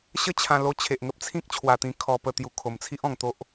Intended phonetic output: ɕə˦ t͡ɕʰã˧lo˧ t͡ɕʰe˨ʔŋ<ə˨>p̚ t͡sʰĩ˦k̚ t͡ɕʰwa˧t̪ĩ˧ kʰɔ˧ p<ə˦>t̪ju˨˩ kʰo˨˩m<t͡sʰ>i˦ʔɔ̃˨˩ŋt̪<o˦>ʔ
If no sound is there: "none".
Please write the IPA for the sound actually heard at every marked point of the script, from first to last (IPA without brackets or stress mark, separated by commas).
ə˦, ə˧, t͡sʰ, o˦